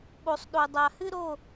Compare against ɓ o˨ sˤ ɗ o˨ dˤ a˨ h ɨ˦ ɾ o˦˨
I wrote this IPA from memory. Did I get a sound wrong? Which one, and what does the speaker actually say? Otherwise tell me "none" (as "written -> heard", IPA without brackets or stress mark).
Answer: none